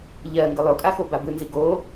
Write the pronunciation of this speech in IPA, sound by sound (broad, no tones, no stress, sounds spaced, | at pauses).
ʎ ɜ ŋ ɡ ɯ lˠ o kʼ a x o b a b ɯ n z i ɡ o